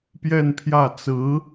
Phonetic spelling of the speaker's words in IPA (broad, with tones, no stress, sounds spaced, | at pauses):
p j ɛ˥˧ n pʰ j ä˥˩ t͡s ɹ̩˧˥